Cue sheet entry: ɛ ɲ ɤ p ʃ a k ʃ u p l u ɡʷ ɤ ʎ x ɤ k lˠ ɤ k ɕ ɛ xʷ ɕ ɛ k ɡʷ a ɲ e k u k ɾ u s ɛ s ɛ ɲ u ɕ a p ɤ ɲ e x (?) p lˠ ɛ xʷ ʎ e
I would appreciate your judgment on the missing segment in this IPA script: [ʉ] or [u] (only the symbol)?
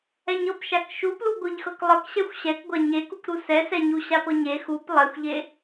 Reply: u